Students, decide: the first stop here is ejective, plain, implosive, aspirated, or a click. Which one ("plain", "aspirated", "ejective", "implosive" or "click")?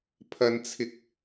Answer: aspirated